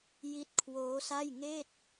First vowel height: high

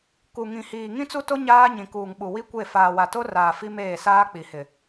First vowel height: high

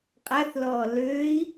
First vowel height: low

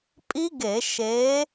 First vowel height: high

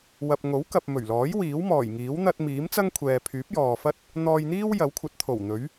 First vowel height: low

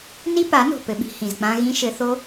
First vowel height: high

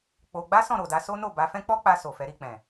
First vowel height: mid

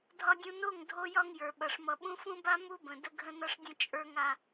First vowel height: low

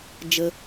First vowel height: mid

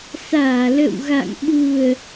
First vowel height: low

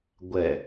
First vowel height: mid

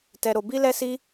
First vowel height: mid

